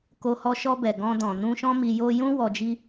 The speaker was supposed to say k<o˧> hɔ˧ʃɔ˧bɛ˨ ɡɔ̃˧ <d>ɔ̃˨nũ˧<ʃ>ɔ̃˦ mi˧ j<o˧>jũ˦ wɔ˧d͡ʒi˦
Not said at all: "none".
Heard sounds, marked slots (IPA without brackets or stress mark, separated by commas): o˧, d, ʃ, o˧